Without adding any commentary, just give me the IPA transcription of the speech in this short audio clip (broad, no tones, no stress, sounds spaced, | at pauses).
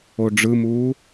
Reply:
o ɖ͡ʐ ɯ m uː